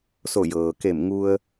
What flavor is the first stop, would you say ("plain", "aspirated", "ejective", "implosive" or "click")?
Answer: plain